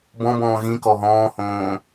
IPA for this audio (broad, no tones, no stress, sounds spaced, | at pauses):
b ɔ̃ b ɔ̃ː ɣ ĩ k ɔ ɦ ɔ̃ː h õː